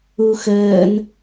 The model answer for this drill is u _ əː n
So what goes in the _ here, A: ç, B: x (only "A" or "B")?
B